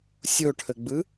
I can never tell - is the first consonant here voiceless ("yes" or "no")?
yes